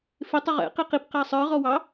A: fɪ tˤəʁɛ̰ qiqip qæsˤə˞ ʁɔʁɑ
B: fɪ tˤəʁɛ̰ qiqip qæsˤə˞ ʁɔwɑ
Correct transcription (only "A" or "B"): B